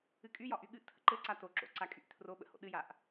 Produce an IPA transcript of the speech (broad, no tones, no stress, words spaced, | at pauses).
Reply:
ɨkʼyjɒ ʔyɠɨʔtʰə̰ ǃɘ ǀato ǁo̰ǀakʼyʔ tʰro ɓə̰ho̰ ɗɨjaʔ